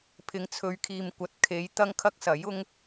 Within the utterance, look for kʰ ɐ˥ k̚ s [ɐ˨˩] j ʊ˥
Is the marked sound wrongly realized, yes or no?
yes